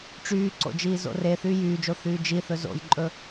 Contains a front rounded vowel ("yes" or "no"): yes